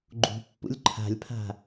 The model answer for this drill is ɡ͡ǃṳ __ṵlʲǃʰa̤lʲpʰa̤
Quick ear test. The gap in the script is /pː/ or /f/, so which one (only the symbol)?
pː